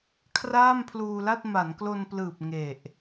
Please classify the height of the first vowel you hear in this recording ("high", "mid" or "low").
low